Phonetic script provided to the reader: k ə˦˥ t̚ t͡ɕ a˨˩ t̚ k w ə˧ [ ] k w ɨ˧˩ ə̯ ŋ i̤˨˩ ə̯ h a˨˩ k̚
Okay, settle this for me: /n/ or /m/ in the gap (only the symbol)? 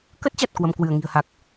m